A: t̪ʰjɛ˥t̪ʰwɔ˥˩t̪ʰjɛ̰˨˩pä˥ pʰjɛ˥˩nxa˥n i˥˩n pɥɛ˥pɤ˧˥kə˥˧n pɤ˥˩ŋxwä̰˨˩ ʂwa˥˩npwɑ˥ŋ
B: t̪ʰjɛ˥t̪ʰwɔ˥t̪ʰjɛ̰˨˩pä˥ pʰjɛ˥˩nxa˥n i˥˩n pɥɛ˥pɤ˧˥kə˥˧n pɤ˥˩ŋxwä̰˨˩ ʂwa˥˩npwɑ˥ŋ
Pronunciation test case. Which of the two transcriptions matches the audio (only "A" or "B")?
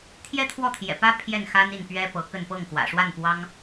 A